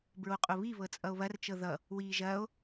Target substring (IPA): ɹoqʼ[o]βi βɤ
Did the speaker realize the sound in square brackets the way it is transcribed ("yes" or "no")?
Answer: yes